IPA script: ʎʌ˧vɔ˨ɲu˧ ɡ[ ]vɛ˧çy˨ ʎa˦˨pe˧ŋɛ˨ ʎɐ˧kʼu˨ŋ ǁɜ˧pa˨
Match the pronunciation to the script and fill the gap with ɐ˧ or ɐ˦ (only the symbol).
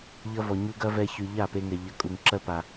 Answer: ɐ˦